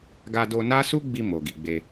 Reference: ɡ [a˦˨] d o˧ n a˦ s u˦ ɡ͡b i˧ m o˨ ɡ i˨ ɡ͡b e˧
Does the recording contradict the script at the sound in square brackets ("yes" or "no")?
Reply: yes